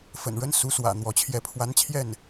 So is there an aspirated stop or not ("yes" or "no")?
yes